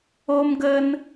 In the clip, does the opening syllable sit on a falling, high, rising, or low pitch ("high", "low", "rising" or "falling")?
high